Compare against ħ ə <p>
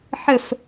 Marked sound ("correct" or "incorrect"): incorrect